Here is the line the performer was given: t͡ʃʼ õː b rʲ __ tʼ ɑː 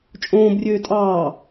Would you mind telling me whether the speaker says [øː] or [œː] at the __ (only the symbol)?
øː